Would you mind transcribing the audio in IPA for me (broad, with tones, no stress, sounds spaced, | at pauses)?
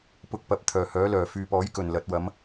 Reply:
p ʊ˧ k̚ p ɐ˨˥ p̚ t̪ʰ œː˨˩ h œː˨˥ l œː˨˩ f yː˨ p ɔː˨˥ j k ɵ˨˩ n l ɐ˨˥ t̚ w ɐ˨˥ m